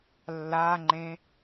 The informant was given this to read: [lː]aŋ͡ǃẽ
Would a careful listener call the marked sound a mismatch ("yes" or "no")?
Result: no